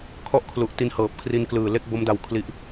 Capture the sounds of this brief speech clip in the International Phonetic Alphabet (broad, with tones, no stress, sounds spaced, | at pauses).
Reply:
kʰ ɔ˦˥ ʔ kʰ l u˨˩ ʔ t i˧ n h ɤː˨˩ p̚ kʰ r i˧ n k l ɯː˨˩ l e˥˩ k̚ b o˦˥ m d a˧ w kʰ l i˦˥ ʔ